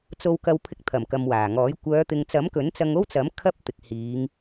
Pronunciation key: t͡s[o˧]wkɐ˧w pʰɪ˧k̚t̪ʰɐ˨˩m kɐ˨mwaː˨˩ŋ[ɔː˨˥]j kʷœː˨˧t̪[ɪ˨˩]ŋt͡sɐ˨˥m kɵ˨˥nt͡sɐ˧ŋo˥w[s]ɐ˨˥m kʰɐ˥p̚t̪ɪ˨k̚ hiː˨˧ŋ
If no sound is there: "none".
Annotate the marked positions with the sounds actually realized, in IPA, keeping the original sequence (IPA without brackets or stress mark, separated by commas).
o˧, ɔː˨˥, ɪ˨, t͡s